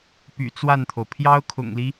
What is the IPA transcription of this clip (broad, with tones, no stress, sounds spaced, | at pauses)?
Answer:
p y̰˨˩ t͡s w a˥˩ n t̪ʰ o˩ ʊ̯ pʰ j ɑ˥ ʊ̯ kʰ ʊ̰˨˩ ŋ l i˦